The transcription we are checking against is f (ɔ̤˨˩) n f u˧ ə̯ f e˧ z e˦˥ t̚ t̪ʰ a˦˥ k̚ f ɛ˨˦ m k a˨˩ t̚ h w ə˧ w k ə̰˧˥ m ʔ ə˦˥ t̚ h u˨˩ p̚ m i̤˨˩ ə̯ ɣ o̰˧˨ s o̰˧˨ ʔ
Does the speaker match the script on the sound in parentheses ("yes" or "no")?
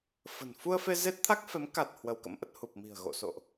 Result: no